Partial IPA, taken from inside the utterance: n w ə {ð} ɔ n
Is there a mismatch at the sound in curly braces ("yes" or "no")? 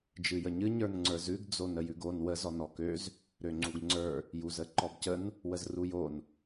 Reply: yes